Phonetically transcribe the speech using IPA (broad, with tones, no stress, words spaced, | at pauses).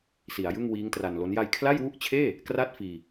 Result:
si˩˦a̯jɯ˥˩ŋ wiː˦˥ŋtra˧nlo˦˥n ja˧jkʰla˥˩jwu˥˩ʔt͡ɕʰeː˥˩ | kra˥˩t̚ fiː˧